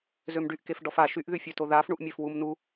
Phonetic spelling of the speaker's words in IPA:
z ø m ɖ y ʔ k e f ɖ ɔ f a ʃ y ʔ ð y fʲ ø t o ð aː f ɳ u ʔ mʲ ø f w u m n u

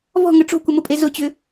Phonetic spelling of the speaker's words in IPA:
v ɔ̤ ŋ ə ʈ͡ʂ o̤ kʷ ə m ʊ pʼ e z ʊ t͡ɕ ʏ

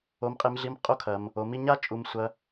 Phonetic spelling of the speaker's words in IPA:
o˧ m qʼ e˧ m ɮ i˧ m qʼ o˦ kʰ ɐ˧ m | o˨˦ m i˧ ɲ a˦ t͡ʃʼ u˧ m sʷ ɐ˧

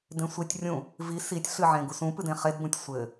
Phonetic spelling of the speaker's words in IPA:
d ẽ sʷ i tʲ rʲ ũ | v i s i tʲ ɬ ɨ ʕ ẽ ɡ u s ũ p ɨ d ẽ χ e d b ũ tʲ sʷ ɘ

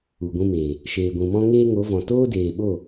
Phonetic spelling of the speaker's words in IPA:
u˨ ɡʷ ũ˧ m eː˨ | ʃ eː˨ ɡʷ ũ˨ m ɔ̃˧ ŋ eː˦ ŋ o˨˦ v ɔ̃˨ t oː˦ d eː˨ ɓ o˦˨

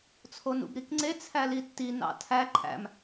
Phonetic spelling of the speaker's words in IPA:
t͡sʰ o n ṵ b ɾ i k ŋ͡ǀ e t͡sʰ æ l i tː i n ɑ̰ tʰ æ ǃʰ æ̰ m

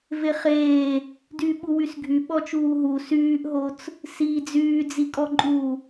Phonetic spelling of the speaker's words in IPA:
v e χ eː | d yː ɓ u w y s ɡʱ y ɓ ɔ t͡ʃ uː ɦ u s yː ʔ ɦ o t͡s | s i d͡z yː d͡z i kʼ ɔ ǃʼ uː

